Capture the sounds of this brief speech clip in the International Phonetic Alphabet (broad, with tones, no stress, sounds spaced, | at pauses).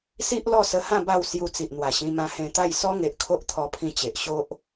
s i˦ ʔ l ɔ˥˧ s ə˧ h ã˥˧ b a˥˧ w s j u˧ t͡s i˨ ʔ n̪ w a˨˩ ɕ ĩ˧ m ã˧ h ẽ˧ t̪ a˥˧ j s ɔ˦ ŋ e˨ ʔ kʰ o˦ ʔ t̪ʰ ɔ˧ pʰ ĩ˧ t͡ɕ e˨ ʔ ɕ o˦ ʔ